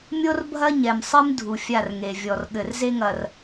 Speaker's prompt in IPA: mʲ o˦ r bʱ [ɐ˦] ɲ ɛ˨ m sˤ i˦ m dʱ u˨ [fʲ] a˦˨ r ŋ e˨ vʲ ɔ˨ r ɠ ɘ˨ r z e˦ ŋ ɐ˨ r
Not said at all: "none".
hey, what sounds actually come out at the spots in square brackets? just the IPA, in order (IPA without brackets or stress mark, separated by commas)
ɐ˦, fʲ